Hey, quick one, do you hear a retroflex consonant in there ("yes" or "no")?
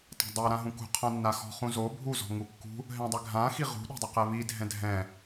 no